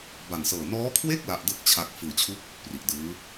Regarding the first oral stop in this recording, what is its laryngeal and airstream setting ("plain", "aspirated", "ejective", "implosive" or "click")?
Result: plain